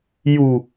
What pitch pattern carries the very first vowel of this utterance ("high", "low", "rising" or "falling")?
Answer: low